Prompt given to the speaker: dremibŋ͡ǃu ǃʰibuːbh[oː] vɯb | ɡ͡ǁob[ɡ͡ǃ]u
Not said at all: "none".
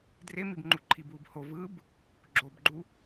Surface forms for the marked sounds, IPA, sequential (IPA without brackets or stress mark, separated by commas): o, ɡ͡ǃ